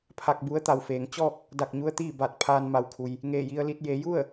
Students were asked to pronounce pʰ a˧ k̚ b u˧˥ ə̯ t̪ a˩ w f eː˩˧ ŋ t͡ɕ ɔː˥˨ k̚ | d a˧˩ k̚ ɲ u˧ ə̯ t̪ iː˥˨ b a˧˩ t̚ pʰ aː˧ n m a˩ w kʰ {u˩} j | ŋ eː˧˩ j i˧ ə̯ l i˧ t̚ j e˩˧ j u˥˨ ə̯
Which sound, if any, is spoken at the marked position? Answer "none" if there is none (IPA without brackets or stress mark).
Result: u˩